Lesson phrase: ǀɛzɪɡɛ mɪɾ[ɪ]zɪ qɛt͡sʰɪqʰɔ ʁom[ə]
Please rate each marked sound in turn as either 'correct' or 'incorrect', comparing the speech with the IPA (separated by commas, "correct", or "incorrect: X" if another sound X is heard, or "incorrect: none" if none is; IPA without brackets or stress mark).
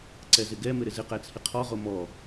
correct, incorrect: ɔ